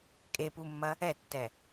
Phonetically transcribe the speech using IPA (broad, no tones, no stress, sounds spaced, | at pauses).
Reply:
kʼ e p u mː ɐ | ɛ tː ɛ